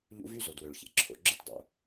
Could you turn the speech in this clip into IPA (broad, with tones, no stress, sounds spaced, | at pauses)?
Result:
ʎ ṵ˦ v y˥ z o˩ d w ø˩ ɭ ç ḛ˩ ǁʰ o̰˩ ɡ͡ǁ ɯ˥ t dˤ o̰˩